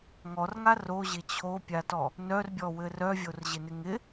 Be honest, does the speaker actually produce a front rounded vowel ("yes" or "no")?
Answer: yes